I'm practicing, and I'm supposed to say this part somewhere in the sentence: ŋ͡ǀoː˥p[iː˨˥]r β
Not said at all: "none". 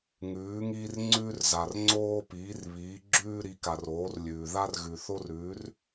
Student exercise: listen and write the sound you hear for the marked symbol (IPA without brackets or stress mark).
iː˨˥